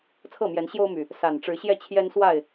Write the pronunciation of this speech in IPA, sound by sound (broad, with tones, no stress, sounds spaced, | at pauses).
t͡sʰ ɤ˥˨ m j ɛ˨˦ n ɕ j o˦ ʊ̯ m y˨˩ | s a˨˩ n ʈ͡ʂ ɻ̩˨˦ ɕ j ɛ˥˨ t͡ɕʰ j ɛ˦ n s w a˥˨ ɪ̯